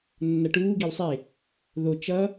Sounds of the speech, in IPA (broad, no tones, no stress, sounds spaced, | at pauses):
nː ʌ ʈ uː ɡ e w sˤ e | ð o t͡ʃ ʌ